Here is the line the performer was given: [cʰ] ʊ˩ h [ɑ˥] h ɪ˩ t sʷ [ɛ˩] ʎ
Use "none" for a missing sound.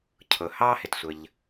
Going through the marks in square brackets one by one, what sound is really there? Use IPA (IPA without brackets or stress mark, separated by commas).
cʰ, ɑ˥, ə˩